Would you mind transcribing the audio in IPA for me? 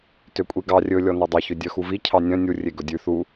t ø kʷʼ i ɡ ɑ rʲ ɵ lʲ ɔ n ɑ dˤ ɑ ç ø dʲ œ x u v i cʰ ɑ nʲ œ̃ nʲ u rʲ e ɡ ɵ dʲ ʉ θ u

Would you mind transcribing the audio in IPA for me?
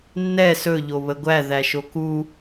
nː ɛ s ɵ ʎ o β ə ɡʷ æ ð æ ʃ o k u

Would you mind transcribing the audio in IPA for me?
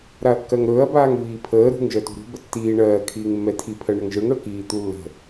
ɾ a ɐ̯ kː ɜ ŋ ɾ ɵː ɐ̯ b aː ŋ v iː pʰ əː ɾ ṳ ŋ ʒ ɜ t ṳ ɾ ṳ b ə tː iː ɳ ɜː kʰ iː ŋ mː ɛ tʰ i pʰ ɜ ɳ ə ŋ ʒ ɯ ŋ ɽ ɵ k iː t̪ u lː ə̤

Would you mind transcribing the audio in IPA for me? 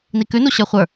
n i k ʉ n u ɕ ə˞ χʷ ə˞

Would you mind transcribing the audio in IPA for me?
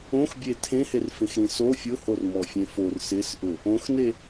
õ x bʲ e tʰ ẽ h e r f ẽ x ɾ ĩ s o fʲ ʊ h o r m ɔ fʲ ẽ f o r s ɪ s ʔ ʊ | õ x n e

